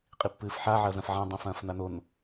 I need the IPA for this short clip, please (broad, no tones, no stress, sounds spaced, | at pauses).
qʼ i pː ɨː f ħ a ʕ ɐ z ɐ̃ f ʕ ã dˤ õ f ɐ̃ː f n a n o n